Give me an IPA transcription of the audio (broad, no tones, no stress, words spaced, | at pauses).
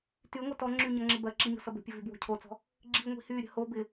tyŋʷɜt ɔŋ͡ǁyɲʌŋ͡ǁɪ bɜǁiɲo̤sʌb ə̤pʲəvybwo̤ cʰot͡sɔ̤ | ɡ͡ǁiŋʷi̤ hyɾʲə̤ ho bɪ